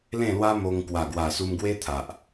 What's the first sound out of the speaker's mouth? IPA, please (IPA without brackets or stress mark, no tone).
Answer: l